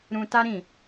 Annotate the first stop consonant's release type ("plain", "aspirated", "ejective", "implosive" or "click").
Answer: plain